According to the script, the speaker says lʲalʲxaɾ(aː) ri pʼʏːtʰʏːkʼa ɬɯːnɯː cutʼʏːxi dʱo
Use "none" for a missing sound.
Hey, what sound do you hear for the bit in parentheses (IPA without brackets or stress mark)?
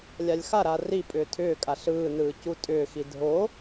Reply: aː